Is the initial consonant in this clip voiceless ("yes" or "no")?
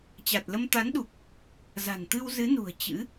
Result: yes